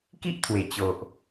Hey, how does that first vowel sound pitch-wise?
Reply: high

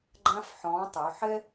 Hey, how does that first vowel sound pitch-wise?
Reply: high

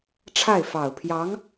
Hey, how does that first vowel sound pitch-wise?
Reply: falling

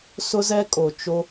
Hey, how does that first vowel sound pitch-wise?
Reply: high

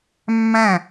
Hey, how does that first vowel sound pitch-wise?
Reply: falling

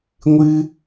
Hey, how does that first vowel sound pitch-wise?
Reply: high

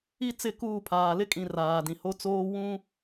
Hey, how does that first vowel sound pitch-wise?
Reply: high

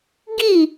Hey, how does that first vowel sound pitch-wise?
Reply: falling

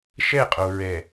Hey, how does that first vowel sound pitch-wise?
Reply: falling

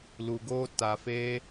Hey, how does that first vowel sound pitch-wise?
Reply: low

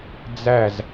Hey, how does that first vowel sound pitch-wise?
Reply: falling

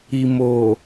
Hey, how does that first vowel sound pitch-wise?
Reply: low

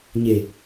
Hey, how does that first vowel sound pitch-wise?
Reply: low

